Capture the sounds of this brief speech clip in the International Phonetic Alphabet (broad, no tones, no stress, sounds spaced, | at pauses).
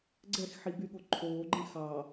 ɡ͡ǀ ɛ x ħ i b y ɠ o ǃʰ oː ɡ͡ǃ ɛ̃ x ɑ